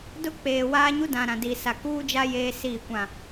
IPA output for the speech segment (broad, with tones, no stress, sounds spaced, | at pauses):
d ʊ˦ k͡p eː˨ w a˦ ɲ u˦ d ã˨ ɾ ã˨ d i˨ s a˨ k uː˦ d͡ʒ a˦ j eː˦ s iː˦˨ kʷ ã˦˨